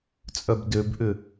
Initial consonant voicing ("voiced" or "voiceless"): voiceless